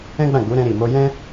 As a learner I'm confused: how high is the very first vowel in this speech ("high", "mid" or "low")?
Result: mid